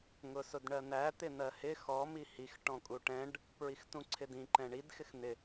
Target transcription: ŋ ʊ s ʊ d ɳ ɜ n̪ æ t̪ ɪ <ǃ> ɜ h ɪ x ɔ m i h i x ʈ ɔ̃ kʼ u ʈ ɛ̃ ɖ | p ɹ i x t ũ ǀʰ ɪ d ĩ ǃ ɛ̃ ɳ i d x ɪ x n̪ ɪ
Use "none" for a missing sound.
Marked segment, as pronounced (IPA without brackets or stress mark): n̪